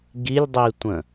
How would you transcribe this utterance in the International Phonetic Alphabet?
ɡilʲdˤitʷə̃

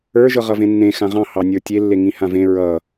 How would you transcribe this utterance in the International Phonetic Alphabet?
ə˞ ʒɤʁʌvẽnːẽ xãʁɑ̃ hɑnʲə˞tʲe lːeŋĩhãvẽ ɹʌ

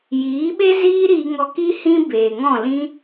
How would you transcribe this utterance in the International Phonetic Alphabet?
jiː˨˦ɓe˦ ziː˦ɾiː˧ŋɔ˧ ki˦ hĩ˧ beː˨ŋɔ̃˦˨lĩ˦

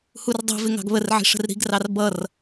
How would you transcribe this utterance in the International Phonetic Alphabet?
hurdˤi̤vɪ ŋɑ̤ɡβərʕi̤ ʂə̤rɾi̤ɡrɑr bʌr

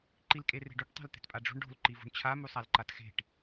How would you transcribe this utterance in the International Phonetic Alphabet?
ǃilkʼere̤ɖuʈ tˤa̤lt̪e̤tpʼaɖ͡ʐṳɳ ɖo̤l ǃivṳɳt͡ɕʰa musˤalǃatxe̤ʈ

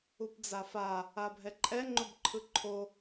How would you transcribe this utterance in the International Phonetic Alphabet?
upd͡zafa | abʱɛǃʼɛ ŋ͡ǃobǃʰɯǃʰo

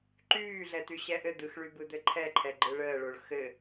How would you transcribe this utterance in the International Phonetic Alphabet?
ǃyːɮɛ t̪yɕɛʔɘ d̪ɯxɭybɯ d̪ɘǃʰɛǃʰɛɡ͡ǃɯ ɭəːɭoɭ xɘ

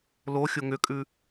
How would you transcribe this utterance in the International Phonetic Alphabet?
loxʲo ŋʏkʼʉ

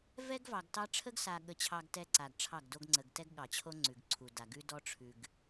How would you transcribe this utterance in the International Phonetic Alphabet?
vɛ˦ɡvɑ˨ɡtɑ˦ ʈ͡ʂʰə˦ɡsa˨ɠə˨t͡ɕʰɑ˨ɡ tɛ˦ǀa˨ɡʈ͡ʂʰɑ˦˨ɡdo˦ɡ ŋ͡ǀə˨ɡtɛ˦ɡɠɑ˨t͡ɕʰo˦ ŋ͡ǀʉ˨ɡǀʰu˨da˨ ɡʉ˦dɔ˦ʈ͡ʂʰʉ˨ɡ

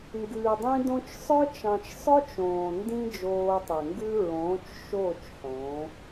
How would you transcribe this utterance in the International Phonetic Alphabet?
ŋɡʉː˨dˤĩ˧dõ˧t͡ʃsˤœ˦ t͡ʃɑ̃˨t͡ʃsˤœ˦t͡ʃ õː˨ndĩ˦ d͡ʒoː˧tˤe˨ŋɡʉ˦ ɹõː˨˦t͡ʃ ʃoː˦˨t͡ʃ ħõː˨˦

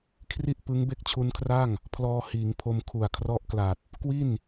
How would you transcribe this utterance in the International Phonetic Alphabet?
kʰri˦˥ʔ pɯ˦˥ŋ be˥˩k̚t͡ɕʰu˦˥nkʰra˥˩ŋ | pʰlɔː˧hiː˩˦ŋpʰo˧m kʰu˨˩a̯kʰrɔ˦˥ʔkla˨˩t̚ | kwi˥˩n

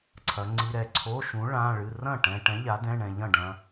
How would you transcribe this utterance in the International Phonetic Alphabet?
ǀʰɐ˨˥ŋ͡ǀi˧˥˧ɾɛ˥˩ ǀʰo˧˥˧ʃũ˨˥ ɭã˧˥˧ɭɨ˧˥˧ rɐ̃˥˩ʈɛ̃˧ʈɛ̃˨˥ ʎa˨˥dɛ̃˧˥˧ɳɛ̃˧ ʎɐ̃˥˩ɖɐ̃˧

